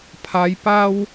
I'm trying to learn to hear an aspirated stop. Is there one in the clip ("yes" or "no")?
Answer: yes